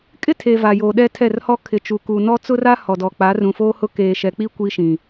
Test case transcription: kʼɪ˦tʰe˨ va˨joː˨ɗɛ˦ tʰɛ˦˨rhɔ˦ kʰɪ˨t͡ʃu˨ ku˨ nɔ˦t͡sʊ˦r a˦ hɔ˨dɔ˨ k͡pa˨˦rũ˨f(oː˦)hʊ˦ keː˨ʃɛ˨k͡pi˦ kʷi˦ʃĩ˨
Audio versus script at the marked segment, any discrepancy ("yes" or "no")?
no